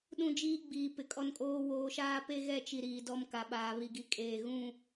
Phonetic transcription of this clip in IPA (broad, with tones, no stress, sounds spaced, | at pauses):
ɗ ũ˦˨ d͡ʒ iː˦ ɡ͡b iː˨ p ɪ˨ kʼ ɔ˦ n kʼ oː˦ w oː˨ ʃ aː˦ p e˦ ɣ ɛ˦˨ t͡ʃ i˨ ɾ iː˨ d ɔ˦ m k a˨ ɓ aː˨ β i˨ ɡ i˨ kʼ eː˨ ɣ ũ˦˨